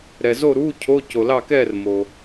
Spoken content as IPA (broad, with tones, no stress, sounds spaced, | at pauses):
ɾ ɛ˨ z o˥˨ ɾ uː˧˥˧ cʰ o˧˥˧ c o˨ l ɑ˥˨ k ɛː˥˨ r m o˨